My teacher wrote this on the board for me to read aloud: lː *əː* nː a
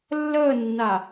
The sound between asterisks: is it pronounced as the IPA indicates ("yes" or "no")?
yes